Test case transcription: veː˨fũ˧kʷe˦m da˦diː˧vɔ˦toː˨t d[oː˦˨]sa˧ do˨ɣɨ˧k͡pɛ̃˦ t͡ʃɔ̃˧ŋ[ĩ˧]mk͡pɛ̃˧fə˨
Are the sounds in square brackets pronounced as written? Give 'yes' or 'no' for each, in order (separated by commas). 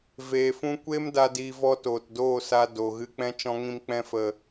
yes, yes